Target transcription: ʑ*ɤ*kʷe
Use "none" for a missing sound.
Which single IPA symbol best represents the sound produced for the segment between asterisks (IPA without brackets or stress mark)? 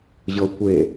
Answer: ɤ